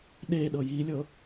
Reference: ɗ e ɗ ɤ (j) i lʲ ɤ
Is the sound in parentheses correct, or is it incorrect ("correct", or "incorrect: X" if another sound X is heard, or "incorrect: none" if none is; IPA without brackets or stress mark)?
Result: correct